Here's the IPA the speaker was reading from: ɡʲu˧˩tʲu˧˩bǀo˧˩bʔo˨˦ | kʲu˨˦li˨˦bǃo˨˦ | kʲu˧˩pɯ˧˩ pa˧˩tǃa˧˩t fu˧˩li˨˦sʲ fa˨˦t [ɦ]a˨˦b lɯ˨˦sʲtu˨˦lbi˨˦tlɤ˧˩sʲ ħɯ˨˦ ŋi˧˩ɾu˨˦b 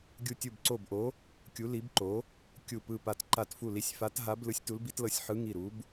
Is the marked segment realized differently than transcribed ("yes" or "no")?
no